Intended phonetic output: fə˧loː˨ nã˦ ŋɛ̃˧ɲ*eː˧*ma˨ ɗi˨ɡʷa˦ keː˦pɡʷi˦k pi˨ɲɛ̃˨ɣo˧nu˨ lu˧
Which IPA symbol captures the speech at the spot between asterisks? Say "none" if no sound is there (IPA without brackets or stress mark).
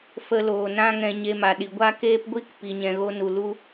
e˧